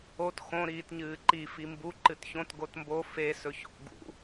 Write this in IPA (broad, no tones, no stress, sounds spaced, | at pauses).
o t x õ ɾ iː t ɲ ɨː ǃ i f i m b u ǃ ɨ t ç õ t ɡ o t m b o f e s ɵ ç o̰ ɡ ṵ